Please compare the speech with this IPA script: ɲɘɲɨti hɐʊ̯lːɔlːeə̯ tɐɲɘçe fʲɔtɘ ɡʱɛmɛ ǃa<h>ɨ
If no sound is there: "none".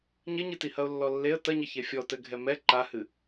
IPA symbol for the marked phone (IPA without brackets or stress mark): h